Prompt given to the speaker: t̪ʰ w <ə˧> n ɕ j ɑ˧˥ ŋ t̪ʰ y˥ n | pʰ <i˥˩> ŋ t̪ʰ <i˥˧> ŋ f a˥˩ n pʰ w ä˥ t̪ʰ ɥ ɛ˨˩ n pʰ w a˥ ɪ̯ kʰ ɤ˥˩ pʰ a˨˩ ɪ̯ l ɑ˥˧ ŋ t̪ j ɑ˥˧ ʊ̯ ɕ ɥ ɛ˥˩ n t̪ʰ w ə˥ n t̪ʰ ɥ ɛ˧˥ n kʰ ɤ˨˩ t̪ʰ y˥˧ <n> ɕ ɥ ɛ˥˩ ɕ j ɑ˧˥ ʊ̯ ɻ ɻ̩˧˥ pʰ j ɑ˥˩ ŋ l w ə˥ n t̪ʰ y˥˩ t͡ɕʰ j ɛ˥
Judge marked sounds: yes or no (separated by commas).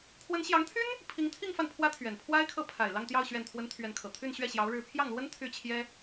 no, no, yes, yes